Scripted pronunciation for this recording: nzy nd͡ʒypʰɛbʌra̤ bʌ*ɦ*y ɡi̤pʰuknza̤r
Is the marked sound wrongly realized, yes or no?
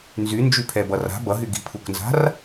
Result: no